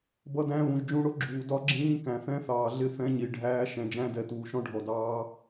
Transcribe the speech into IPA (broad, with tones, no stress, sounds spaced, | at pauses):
b ʌ˦˥ d æ̃˦˥ β ũ˨ ʒ d͡ʒ ũ˦˥ ɽ ʊ˦˥ ɡ͡ǁ uː˨ d ɒ˦˥ ɡ͡ǁ ĩː˦˥ k æ̃˨ θ ɛ̃˦˥ θ ɑː˨ ɮ ɪ˦˥ θ ɛ̃˦˥ ɲ i˨ ɖʱ æː˦˥ ʃ ɛ̃˨ d͡ʒ æ̃˦˥ d ɛ˨ t uː˨ ʃ ɔ̃˦˥ ɖʱ ɔ˨ d ɑː˦˥